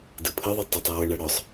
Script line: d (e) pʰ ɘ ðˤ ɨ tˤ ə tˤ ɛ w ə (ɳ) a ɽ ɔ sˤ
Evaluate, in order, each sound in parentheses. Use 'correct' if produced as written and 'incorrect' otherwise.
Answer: incorrect, correct

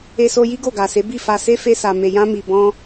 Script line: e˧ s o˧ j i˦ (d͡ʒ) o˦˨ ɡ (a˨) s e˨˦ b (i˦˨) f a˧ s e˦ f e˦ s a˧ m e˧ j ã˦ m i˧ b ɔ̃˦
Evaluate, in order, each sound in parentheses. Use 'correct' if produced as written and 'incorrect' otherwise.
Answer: incorrect, correct, correct

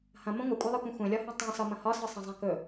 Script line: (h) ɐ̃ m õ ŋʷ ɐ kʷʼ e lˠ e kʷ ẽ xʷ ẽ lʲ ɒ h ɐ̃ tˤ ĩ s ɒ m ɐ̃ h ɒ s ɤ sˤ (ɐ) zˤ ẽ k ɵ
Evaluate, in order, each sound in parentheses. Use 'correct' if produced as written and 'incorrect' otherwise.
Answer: correct, incorrect

